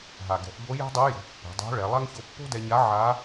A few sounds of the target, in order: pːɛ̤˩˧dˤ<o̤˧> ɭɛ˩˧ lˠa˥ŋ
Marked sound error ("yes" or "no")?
yes